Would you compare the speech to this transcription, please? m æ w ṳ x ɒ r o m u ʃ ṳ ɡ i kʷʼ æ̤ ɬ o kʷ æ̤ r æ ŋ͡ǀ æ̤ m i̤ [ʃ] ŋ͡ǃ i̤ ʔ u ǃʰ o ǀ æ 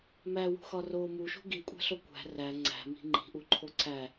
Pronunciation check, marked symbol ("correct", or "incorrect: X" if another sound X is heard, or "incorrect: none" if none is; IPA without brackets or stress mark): incorrect: none